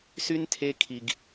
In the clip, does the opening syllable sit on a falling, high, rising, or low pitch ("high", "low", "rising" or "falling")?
high